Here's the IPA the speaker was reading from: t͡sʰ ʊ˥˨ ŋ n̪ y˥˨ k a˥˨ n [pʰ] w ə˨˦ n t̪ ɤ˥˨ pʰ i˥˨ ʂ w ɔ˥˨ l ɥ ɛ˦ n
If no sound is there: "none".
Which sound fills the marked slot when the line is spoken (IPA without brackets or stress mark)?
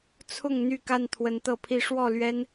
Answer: t̪ʰ